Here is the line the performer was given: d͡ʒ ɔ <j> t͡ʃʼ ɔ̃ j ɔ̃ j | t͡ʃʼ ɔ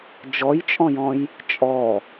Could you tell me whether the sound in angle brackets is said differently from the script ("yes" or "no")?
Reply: no